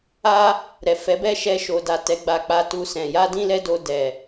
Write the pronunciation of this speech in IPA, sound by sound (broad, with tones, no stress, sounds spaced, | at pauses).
a˦ | ɾ ɛ˨ f ɛ˨˦ b ɛ˦ ʃ ɛ˧ ʃ o˨ d a˨ t ɛ˧ ɡ͡b a˦ k͡p a˦ t u˦ s ɛ̃˧ j a˦ d ĩ˦ l ɛ˦ d o˧ d ɛ˨